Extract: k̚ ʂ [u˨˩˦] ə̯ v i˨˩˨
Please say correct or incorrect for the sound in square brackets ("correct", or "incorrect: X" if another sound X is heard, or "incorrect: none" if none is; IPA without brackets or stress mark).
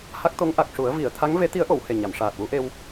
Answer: correct